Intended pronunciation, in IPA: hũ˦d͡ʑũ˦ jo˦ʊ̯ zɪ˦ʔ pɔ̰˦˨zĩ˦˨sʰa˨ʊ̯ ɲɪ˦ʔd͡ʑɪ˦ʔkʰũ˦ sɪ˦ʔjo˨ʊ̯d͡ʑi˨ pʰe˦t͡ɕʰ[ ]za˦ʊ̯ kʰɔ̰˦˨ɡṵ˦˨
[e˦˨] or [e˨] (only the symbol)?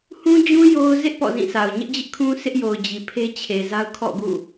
e˨